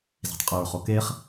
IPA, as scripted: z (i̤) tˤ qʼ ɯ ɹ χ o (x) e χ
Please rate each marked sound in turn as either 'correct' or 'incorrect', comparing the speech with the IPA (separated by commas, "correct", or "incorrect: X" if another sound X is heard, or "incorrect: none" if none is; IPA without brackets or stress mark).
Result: correct, incorrect: k